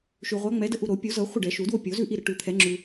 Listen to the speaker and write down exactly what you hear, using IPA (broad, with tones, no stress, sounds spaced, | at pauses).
ʃ ʉ˨ ʁʷ a˨˦ ŋ͡m ɛ˨˦ d ə˦ ʔ u˨ ɾ o˨˩˦ pʲ u˨˩˦ z ɤ˨˩˦ χʷ ə˥˨ ɖ ɛ˨˩˦ ʃ u˨˩˦ d w o˥˨ pʲ o˨˩˦ z ʉ˥˨ ʔ i˥˨ ɾ ə˨˦ ʈ ʉ˨ t̪ʰ ɛ˨˩˦ ŋ͡ǁ ʉ˨